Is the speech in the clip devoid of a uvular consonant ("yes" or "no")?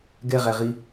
no